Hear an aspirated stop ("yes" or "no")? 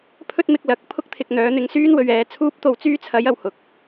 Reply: yes